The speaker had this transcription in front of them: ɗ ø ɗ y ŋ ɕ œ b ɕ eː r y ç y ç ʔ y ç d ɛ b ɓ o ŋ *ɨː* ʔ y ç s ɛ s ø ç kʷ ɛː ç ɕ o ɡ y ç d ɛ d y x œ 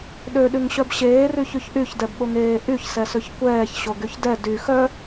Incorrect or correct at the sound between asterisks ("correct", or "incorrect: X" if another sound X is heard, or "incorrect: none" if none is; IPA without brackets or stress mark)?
incorrect: eː